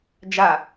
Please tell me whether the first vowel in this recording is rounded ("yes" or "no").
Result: no